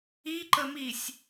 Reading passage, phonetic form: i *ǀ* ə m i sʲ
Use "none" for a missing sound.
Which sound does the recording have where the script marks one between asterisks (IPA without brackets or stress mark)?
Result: ǃ